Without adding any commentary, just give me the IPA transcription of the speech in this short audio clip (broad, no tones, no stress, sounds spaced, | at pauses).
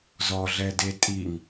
z ɔ ɮ ɛ d e tʼ i ŋ